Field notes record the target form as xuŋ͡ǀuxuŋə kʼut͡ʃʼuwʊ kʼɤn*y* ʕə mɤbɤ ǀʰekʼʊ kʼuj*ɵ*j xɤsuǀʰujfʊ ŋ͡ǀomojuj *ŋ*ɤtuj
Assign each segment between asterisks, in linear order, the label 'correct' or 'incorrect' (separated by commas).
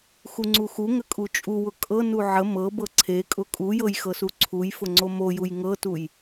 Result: incorrect, incorrect, correct